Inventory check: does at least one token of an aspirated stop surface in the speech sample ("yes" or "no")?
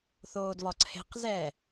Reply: yes